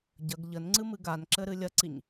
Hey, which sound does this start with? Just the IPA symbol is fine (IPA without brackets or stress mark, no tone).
ɟ